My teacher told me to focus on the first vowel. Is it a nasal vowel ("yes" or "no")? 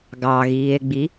no